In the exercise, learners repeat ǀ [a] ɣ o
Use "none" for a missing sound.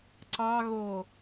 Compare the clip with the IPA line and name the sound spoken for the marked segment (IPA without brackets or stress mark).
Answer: ɑ